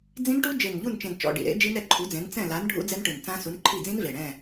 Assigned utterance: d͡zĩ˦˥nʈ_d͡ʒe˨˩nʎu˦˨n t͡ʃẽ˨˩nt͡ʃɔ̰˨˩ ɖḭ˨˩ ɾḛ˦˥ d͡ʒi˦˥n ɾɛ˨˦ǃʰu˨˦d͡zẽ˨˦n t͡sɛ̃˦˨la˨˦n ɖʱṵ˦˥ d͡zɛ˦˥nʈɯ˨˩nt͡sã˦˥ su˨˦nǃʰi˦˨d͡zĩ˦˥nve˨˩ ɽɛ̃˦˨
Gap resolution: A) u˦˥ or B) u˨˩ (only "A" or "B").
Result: A